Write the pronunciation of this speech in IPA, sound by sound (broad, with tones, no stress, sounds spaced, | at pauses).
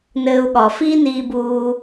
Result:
n ɘː˧ u̯ ɠ ɒ˨ f iː˦ n iː˧ b uː˧